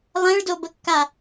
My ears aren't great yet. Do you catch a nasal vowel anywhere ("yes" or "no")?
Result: yes